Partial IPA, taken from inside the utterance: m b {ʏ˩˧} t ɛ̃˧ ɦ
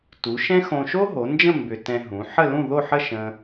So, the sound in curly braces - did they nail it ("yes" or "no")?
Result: no